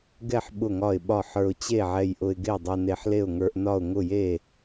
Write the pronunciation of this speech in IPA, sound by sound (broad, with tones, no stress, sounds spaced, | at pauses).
ɡ ɛ˥˩ ħ ɓ ʊ˥˩ ŋ ɒ˥˩ ɪ̯ ɓ ɒ˥˩ ħ ə˞˧ ʊ̯ t͡ɕ e˥˩ ʕ ɛ˧ j ʔ ʊ˧ ɪ̯ ɡ e˥˩ ʊ̯ dˤ ɛ˧ n e˧ ħ l e˥˩ ʊ̯ ŋ ə˞˧ ʔ n ɒ˥˩ ʊ̯ ŋ ʊ˥˩ j e˥˩